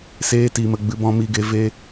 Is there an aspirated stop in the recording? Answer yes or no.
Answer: no